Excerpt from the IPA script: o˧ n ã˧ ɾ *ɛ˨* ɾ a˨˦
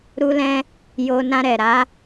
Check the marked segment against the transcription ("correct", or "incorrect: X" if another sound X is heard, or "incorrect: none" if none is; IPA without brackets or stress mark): correct